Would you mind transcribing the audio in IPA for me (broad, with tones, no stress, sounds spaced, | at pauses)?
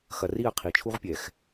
x ɐ˨ r i˦˨ ɐ̯ qʰ i˨ t͡ʃʰ u˦ ʁ pʲ ɛ˨ x